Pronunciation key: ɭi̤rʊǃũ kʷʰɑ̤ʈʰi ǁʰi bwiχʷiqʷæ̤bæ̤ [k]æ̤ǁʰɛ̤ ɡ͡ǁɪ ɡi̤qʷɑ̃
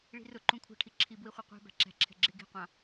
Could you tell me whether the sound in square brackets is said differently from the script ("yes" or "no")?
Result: yes